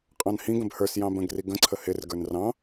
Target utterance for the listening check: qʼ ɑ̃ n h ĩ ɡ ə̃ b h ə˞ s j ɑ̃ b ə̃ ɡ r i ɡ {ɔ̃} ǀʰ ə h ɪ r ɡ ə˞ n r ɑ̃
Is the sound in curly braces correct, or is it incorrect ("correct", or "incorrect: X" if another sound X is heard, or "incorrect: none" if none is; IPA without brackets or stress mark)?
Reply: incorrect: ə̃